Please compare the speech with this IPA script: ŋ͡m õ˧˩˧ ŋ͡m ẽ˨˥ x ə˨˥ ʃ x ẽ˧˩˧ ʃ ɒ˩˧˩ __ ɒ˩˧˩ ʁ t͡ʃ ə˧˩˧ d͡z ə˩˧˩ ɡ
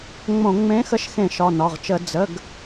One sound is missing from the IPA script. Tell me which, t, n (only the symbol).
n